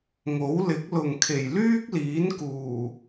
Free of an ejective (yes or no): yes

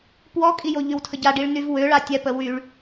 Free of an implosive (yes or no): yes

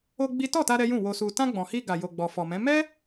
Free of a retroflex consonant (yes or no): yes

